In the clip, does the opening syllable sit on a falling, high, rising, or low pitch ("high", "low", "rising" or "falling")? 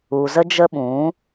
low